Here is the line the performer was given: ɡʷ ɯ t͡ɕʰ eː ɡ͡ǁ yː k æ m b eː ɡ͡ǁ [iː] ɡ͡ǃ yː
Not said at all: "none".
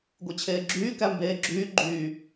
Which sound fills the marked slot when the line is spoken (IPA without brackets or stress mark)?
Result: yː